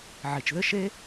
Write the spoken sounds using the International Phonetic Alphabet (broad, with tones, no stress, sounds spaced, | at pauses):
ʕ i˩ t͡ʃ ð ɘ˥ ʃ e˥